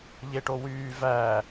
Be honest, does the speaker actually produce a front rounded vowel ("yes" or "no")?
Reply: yes